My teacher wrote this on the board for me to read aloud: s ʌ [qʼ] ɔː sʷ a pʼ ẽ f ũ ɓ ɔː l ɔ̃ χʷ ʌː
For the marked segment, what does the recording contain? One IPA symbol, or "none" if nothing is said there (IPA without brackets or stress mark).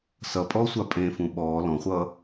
pʼ